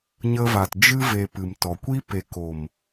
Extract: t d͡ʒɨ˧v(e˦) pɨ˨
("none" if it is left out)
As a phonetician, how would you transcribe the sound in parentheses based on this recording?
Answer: e˨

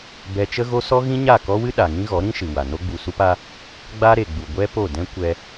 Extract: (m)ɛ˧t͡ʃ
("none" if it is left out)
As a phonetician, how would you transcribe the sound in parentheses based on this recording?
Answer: b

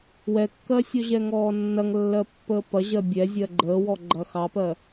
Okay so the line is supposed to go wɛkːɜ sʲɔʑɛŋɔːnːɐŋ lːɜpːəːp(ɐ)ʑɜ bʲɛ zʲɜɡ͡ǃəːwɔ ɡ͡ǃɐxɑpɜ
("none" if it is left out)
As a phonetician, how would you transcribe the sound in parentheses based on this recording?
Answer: ɐ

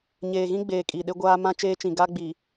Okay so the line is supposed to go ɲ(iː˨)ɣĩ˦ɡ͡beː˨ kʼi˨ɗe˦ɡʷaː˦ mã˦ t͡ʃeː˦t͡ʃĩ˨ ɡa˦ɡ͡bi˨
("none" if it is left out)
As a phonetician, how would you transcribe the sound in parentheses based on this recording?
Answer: eː˨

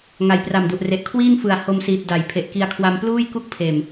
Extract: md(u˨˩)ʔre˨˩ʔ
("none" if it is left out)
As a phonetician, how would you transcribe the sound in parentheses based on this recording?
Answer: u˨˩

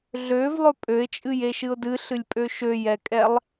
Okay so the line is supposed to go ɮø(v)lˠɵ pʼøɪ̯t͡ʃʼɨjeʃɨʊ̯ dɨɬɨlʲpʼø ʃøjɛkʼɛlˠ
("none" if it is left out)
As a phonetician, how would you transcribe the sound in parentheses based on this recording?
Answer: v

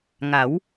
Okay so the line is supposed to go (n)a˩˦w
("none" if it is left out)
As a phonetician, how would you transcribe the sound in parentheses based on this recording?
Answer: ŋ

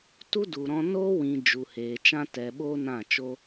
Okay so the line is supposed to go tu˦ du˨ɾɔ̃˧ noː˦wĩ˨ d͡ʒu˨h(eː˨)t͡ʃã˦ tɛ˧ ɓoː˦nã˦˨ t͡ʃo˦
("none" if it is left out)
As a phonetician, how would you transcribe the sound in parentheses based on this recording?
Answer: eː˨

